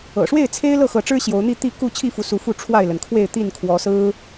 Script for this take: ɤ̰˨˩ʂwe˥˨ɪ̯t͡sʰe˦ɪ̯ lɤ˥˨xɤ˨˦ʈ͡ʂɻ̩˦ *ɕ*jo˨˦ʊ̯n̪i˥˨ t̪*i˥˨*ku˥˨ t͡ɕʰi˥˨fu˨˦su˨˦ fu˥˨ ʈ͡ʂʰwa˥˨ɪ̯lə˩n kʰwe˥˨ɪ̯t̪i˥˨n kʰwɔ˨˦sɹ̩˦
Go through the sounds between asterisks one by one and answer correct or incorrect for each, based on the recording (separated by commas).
correct, correct